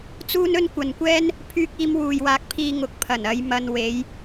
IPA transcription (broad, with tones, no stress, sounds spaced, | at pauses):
t͡s uː˥ n ɵ˥ n kʷ ɐ˨ n kʷ ɛː˥ n | pʰ yː˧ k̚ iː˧ m w uː˨ j w aː˧ k̚ pʰ iː˧ ŋ ʊ˨˥ k̚ pʰ ɐ˨˩ n ɐ˨˧ j m ɐ˧ n w e˨˧ j